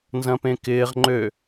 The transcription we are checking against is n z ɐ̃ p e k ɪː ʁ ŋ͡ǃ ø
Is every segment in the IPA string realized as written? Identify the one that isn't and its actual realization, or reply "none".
e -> ẽ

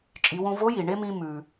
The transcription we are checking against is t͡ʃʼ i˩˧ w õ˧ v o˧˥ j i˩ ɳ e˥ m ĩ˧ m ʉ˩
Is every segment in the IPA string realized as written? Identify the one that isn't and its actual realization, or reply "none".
none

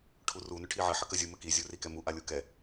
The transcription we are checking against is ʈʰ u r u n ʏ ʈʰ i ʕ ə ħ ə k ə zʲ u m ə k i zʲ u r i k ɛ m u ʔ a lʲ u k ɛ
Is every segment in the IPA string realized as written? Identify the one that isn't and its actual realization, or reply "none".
none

